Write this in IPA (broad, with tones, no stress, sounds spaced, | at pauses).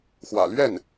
x w ä̰˨˩ l ɥ ɛ˥˩ n